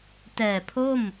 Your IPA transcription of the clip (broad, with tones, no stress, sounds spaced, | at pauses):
t ɛː˨˩ pʰ o˥˩ m